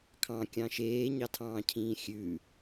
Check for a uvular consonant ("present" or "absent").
absent